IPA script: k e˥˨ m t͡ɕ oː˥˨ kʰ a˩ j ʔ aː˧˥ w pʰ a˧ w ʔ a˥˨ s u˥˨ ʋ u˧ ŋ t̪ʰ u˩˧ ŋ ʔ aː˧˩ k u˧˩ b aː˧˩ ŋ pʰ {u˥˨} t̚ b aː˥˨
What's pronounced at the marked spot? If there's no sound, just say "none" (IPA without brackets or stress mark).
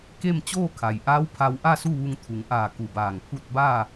u˥˨